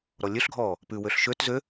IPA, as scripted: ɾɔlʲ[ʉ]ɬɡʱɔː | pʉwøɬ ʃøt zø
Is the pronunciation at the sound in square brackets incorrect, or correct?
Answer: incorrect